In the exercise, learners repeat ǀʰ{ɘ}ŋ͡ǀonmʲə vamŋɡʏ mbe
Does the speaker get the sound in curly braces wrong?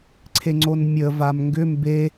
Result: yes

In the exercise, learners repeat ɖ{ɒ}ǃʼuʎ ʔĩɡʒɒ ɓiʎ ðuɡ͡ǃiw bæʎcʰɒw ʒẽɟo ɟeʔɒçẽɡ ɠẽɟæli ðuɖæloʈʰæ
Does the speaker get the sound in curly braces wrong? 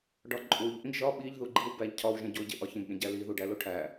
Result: no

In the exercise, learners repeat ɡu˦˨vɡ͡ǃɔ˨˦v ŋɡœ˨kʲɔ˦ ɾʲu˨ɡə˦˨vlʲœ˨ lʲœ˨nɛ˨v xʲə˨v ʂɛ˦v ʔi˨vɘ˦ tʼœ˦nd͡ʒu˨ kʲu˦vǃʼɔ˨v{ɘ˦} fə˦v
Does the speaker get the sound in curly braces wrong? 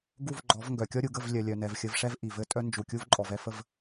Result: yes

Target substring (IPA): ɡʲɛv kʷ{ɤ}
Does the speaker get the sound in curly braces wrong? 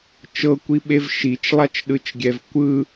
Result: yes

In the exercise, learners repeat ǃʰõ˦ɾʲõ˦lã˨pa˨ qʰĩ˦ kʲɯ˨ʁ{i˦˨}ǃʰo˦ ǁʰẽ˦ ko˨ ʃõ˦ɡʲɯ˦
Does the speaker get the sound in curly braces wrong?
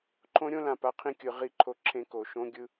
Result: no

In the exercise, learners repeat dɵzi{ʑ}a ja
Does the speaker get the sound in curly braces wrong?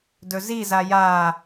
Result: yes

